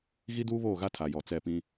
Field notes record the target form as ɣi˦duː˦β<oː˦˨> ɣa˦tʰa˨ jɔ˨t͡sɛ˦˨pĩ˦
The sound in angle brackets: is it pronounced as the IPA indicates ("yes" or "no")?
yes